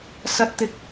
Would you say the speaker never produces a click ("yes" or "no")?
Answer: yes